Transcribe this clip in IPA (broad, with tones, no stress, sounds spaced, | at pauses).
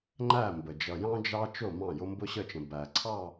ŋ͡ǃ æ˦˨ m b ə˨ d͡ʒ ʌ˨ j ɑ̃˦ d͡ʒ ɑ˦ t͡ʃ ʊ˦˨ m ɑ̃˦˨ j ʊ˦ m b ʊ˦ ɕ ə˦˨ t͡ʃ ə̃˨ b æ˨ ǀʰ ɑ˦˨